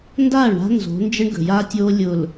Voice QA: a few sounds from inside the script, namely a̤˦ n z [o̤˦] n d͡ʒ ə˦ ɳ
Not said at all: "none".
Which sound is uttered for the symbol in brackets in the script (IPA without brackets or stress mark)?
o̤˨˦